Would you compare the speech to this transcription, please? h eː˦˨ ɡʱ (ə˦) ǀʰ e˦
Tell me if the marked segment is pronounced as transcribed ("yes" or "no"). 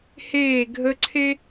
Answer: yes